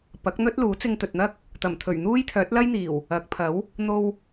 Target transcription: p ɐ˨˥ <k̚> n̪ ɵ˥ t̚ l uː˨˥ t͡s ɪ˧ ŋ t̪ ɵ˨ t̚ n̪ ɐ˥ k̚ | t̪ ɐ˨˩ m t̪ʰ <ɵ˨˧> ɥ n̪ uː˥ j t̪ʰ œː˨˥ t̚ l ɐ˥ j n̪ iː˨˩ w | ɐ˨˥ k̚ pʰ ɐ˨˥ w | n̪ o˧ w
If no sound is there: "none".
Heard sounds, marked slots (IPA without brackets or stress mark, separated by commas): k̚, ɵ˨˩